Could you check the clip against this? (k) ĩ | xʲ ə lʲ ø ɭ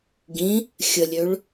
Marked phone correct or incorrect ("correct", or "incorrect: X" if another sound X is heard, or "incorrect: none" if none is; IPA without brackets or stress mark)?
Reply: incorrect: ɡ